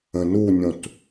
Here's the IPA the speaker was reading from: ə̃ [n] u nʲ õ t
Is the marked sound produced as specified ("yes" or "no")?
yes